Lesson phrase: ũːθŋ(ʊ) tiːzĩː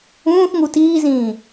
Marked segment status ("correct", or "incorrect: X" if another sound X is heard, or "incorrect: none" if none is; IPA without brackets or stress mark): incorrect: u